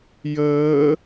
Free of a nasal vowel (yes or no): yes